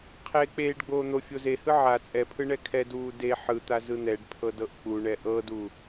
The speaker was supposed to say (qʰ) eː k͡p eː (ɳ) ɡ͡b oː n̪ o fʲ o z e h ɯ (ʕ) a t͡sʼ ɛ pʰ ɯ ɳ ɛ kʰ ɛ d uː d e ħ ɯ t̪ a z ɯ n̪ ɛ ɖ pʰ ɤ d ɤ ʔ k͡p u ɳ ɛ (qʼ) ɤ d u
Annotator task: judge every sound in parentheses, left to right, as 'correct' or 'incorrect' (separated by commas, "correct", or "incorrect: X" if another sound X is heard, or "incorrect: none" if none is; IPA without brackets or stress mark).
correct, incorrect: ɖ, correct, incorrect: ʔ